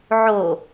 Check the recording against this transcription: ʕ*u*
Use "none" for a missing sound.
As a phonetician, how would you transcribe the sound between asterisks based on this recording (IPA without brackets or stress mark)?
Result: o